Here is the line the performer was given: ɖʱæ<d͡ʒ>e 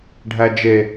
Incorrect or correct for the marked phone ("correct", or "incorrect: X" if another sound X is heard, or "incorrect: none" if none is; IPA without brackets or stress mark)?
correct